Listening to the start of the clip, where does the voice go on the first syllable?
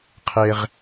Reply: low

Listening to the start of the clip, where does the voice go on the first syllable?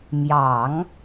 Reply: low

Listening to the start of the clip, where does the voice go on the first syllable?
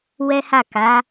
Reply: high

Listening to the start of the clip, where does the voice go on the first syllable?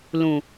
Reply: low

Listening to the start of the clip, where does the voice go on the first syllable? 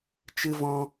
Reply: high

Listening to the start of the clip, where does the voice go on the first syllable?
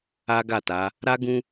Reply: high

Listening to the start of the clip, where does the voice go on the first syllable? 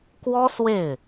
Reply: high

